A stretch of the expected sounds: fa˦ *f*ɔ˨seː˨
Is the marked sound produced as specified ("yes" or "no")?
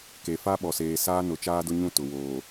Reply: no